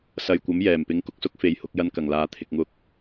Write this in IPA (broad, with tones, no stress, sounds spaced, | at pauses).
s ɐ˨ j kʷ ɐ˨˥ m j ɛː˨˩ m p ɪ˨˥ ŋ k ʊ˨˥ k̚ s ʊ˨˥ k̚ f e˨ j h ʊ˧ k̚ j ɐ˧ n k ɐ˨˩ ŋ l aː˨ t̪ʰ ɪ˨ k̚ ŋ ʊ˧ k̚